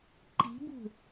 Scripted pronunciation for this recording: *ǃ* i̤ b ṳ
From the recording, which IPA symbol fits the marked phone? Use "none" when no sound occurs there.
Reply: ǃ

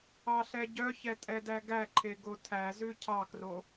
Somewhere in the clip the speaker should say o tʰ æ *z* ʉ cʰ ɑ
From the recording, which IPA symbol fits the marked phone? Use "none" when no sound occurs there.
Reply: z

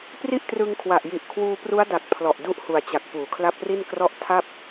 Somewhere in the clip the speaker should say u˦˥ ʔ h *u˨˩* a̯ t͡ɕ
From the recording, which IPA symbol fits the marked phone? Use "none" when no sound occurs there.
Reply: u˨˩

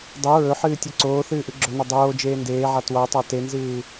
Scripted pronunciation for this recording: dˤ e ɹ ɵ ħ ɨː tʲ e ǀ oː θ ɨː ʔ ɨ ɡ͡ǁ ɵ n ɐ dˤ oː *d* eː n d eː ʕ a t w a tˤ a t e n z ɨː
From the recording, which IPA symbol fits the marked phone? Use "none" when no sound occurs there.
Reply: d͡ʒ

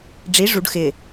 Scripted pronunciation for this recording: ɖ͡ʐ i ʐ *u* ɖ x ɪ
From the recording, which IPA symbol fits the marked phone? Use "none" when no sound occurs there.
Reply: u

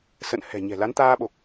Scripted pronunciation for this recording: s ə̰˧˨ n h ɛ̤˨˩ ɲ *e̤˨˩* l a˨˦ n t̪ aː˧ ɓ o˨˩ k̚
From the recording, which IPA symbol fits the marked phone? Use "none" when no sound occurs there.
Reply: ɛ̤˨˩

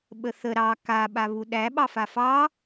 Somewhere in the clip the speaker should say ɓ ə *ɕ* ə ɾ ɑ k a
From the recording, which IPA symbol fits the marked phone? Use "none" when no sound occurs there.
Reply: θ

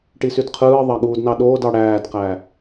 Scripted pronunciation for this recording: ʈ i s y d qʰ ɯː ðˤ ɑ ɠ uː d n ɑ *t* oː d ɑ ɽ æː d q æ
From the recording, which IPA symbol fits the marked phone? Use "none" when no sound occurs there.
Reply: ɗ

